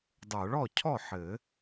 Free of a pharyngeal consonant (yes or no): no